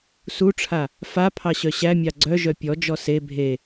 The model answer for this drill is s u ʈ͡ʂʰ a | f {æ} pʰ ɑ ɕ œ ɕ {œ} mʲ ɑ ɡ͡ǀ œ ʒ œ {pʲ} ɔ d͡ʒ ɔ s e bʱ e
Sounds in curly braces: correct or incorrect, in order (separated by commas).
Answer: incorrect, incorrect, correct